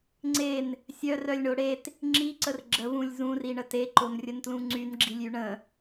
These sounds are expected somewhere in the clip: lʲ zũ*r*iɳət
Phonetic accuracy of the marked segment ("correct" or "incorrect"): correct